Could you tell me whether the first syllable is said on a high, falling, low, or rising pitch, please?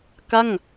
falling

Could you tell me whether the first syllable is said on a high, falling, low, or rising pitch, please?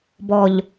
low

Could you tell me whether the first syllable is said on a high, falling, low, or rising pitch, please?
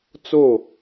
falling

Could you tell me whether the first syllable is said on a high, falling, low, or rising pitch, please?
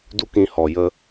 high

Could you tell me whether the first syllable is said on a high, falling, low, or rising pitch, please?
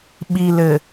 low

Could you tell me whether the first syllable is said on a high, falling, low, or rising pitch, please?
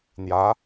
rising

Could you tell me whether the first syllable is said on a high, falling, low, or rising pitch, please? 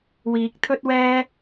rising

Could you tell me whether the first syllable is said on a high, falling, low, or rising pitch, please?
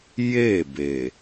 falling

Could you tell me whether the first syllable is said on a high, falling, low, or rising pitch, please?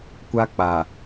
high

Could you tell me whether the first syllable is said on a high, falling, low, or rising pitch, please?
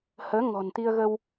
rising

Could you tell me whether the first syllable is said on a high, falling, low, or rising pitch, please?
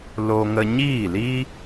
high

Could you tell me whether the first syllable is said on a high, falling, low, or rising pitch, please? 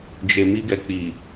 low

